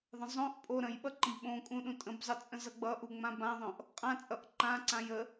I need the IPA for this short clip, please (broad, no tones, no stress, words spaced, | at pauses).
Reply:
ðˤə̃zˤõʔpʼo ɾə̃j ɓʌǃə̃bɓõkʼũ ɗũtʼə̃bzˤʌ t͡sʼə̃zʌɡ͡bʌʔu ŋ͡mãbãðˤõʔ | qʼãt͡sʼʌʔ ǃãǀãj ə